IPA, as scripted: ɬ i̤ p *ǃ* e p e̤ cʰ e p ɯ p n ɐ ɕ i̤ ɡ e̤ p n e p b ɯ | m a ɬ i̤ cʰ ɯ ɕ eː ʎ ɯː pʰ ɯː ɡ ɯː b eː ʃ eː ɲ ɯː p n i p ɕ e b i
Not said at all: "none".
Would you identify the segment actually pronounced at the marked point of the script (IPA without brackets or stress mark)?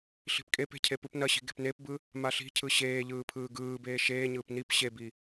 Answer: kʼ